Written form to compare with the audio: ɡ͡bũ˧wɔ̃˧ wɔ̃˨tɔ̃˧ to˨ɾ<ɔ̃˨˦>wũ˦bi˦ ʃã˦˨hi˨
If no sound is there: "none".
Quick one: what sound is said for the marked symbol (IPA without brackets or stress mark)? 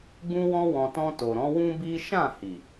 ɔ̃˨˦